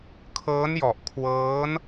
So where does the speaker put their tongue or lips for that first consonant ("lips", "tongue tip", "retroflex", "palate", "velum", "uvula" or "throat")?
velum